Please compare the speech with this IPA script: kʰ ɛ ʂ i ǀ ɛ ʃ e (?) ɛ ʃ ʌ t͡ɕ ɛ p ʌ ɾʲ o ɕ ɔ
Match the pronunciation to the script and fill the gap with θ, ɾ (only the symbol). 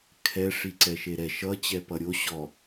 ɾ